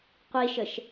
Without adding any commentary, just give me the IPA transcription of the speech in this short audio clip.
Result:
qʷ i ʃ ə ʃ

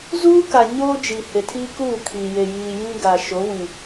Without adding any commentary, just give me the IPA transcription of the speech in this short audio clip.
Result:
z uː˦ k a˨ ɲ oː˦ d͡ʒ i˨ h e˨ tʰ iː˦ k uː˦˨ kʰ i˨ j e˨ j iː˨ j ĩ˦ ɡ a˨ ʃ o˨˦ w ĩ˨

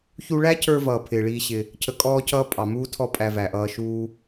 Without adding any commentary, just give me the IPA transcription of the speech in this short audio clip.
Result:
ç u˧ ɭ æ˦ cʰ ə˞˧ v ʌː˨ pʰ ɪː˧ ɭ iː˦ ɕ ɪ˧ | cʰ ə˧ kʼ ɔː˦ cʰ ʌː˦ pʼ ɑ˨ m uː˦ tʰ ɔ˦ pʼ æ˧ v æ˨ ʔ ʌː˧ ʃ uː˦

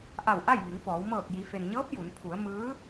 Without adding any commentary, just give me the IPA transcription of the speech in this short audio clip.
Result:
ʔ a˧˩ w ʔ a˥˨ j ʋ i˩˧ ŋ f ɔː˩˧ w m ɤː˧˩ k̚ j i˩˧ f e˩ n ɲ ɤː˧˥ p̚ j u˩˧ n pʰ u˩˧ ə̯ m ɯː˧˥

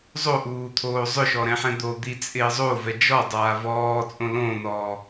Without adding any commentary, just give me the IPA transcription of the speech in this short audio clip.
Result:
zˤ o ʔ uː t̪ʰ oː zˤ ʊ ʃ ɔ ɾ ɛ̃ ħ ɛ̃ d̪ o d̪ i t͡sʼ ɪː zˤ o v ɛ d͡ʒ ɔ dˤ aː v ɔː t͡sʼ õ l õ n ɔː

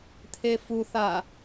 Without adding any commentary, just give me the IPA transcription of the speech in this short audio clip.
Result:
t̪ʰ e f u θ a

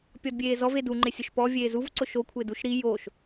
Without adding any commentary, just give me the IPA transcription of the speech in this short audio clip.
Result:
pʲ ɔ d bʲ eː z ɔ v e d u ŋ͡ǃ ɪ sʲ ʊ ʃ p ɔ vʲ eː z u v ǀ ʊ ʃ o kʷʰ ɪː d u ʃ ɾ i j o ʃ

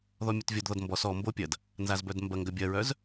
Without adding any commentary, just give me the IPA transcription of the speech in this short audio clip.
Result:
ð ɔ mʲ ɐ t vʲ ɔ d ð ɔ d m b ɔ s ɔ m b o pʲ ɐ d | n z a z b œ d m b ɐ ŋ ɡ ɐ bʲ ɐ ɹ œ z

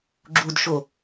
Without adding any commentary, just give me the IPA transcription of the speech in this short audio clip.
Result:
ɡ͡ǁ u d ʃ o

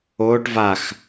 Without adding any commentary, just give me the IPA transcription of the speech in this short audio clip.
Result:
oː ʈ v a x

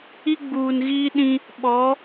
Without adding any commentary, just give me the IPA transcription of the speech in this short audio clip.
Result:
i˦ ɡ͡b uː˨ n ɣ iː˦ ɗ ĩ˦ | ɓ ɔ˨˦

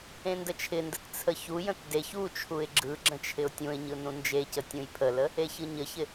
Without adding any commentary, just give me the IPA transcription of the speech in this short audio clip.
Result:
ẽ n d ə t͡ʃʰ ɪ n d ə t t͡sʰ ə ç u j ə̃ t d e ç u t͡ʃʰ u ɪ̯ ɡ͡ǁ ɯ ɡ͡ǁ ə̃ t͡ʃʰ ɪ ʊ̯ tʲ ũ ɪ̯ ɲ ɯ n ũ n d͡ʒ e c ə tʲ ũ j pʰ ə l ə | e ç ɯ ɲ ə ç ɪ

